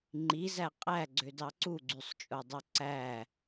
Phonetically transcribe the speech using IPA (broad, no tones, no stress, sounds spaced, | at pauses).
ŋ͡ǃ i z æ qʼ æ ɡ͡ǀ ø d ɑ ǀ u ɡ͡ǀ y sˤ t͡ʃʼ o dˤ o ǀ æ